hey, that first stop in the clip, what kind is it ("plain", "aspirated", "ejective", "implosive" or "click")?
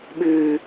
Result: implosive